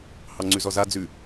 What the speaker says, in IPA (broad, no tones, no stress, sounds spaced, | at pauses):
h ɑ ŋ͡ǀ ʉ z ɔ z a d͡z ʉ